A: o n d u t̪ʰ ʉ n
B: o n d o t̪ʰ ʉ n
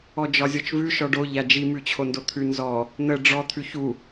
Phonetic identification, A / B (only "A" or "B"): B